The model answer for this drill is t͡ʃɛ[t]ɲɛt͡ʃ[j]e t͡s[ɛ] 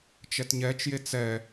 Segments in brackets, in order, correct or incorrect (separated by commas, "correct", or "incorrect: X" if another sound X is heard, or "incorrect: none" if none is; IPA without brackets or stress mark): correct, correct, correct